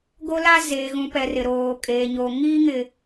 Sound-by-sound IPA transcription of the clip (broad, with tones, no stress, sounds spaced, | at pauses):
ɡ o˦ l a˦ z eː˨ ɣ ũ˨ p ɛ˨ r ɪ˨ ɾ oː˨ kʼ eː˨ ɲ oː˨ ŋ iː˦ ŋ ɪ˨